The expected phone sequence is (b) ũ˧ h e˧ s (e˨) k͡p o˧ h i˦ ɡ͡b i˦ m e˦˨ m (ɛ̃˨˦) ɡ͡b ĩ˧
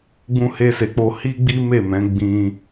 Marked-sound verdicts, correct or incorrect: incorrect: ɡ͡b, correct, correct

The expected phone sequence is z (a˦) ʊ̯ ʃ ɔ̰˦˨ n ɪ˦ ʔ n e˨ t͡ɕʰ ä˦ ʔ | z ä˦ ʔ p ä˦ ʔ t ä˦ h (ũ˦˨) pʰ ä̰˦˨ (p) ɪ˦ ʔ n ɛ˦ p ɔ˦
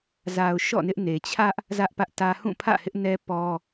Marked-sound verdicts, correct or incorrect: incorrect: a˨, correct, incorrect: h

